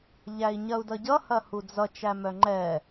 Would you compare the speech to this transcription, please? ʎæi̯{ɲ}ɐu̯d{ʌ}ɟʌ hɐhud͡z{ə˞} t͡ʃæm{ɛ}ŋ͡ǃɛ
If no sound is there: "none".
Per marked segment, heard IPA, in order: ɲ, ʌ, ʌ, œ

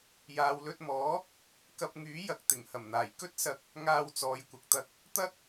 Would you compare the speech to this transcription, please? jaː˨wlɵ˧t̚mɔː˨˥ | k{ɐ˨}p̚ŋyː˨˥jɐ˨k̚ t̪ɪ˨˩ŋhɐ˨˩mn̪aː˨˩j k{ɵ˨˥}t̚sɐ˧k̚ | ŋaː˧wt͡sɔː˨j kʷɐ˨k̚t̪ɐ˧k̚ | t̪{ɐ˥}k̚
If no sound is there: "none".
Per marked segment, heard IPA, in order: ɐ˧, ɵ˥, ɐ˥

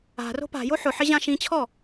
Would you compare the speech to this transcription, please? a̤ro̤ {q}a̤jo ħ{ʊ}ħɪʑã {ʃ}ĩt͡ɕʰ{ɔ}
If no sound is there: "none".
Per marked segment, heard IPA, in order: p, ʊ, ʃ, ɔ

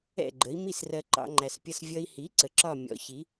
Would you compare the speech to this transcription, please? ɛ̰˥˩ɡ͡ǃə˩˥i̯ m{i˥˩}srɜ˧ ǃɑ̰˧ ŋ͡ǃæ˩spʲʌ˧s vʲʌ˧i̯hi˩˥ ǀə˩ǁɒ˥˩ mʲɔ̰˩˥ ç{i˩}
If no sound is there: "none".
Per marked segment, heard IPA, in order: i˥˩, i˩˥

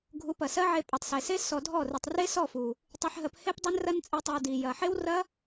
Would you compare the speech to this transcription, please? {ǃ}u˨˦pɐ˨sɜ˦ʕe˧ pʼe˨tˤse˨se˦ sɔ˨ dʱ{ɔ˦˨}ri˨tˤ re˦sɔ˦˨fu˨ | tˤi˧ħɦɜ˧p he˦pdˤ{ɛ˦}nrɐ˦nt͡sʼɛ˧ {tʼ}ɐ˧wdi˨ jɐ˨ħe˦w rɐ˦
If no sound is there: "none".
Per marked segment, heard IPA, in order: ɡʱ, ɔ˦˨, e˦, tˤ

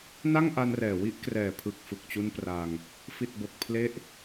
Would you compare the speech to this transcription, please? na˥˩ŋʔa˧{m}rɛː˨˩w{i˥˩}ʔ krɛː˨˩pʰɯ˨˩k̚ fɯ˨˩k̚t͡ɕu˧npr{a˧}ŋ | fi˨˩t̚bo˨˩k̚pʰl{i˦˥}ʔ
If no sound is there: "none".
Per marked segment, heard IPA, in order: n, i˦˥, a˧, e˦˥

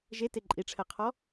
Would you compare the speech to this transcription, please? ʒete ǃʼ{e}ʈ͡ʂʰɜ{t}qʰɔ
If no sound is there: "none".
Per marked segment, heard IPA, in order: i, none

